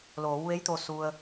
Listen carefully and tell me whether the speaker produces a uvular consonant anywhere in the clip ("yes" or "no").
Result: no